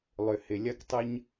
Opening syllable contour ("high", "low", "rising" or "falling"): low